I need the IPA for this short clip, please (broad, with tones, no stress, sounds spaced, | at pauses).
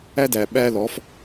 æ˥ d æ˧ ɓ æ˥ l ɔ˧˥ f